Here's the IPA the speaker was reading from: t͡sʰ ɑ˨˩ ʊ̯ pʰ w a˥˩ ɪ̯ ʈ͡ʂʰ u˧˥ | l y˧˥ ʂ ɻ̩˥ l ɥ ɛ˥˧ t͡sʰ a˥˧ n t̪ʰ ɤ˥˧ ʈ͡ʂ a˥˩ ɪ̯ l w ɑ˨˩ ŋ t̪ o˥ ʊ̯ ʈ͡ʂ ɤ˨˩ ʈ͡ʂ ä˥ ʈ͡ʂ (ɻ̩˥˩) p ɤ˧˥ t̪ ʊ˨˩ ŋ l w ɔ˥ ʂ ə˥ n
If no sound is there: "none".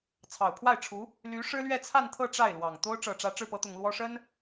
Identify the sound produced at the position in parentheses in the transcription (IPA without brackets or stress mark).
ɻ̩˥˩